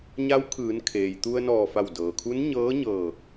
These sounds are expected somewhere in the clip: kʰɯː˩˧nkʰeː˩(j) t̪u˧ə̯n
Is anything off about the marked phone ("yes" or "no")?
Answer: no